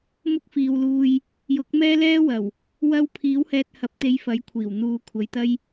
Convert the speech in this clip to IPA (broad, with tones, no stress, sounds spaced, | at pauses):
m ʊ˥ k̚ f iː˨ w l uː˧ j | j ʊ˨˥ k̚ m ɛː˥ l ɛː˥ w ɐ˨˩ w | w ɐ˧ w pʰ iː˨˥ w h ɛː˧ t̚ h ɐ˨˥ p̚ t̪ e˨˧ j f ɐ˨˥ j kʷʰ iː˨˩ w n̪ uː˨˧ kʷʰ ɐ˨ j t̪ ɐ˥ j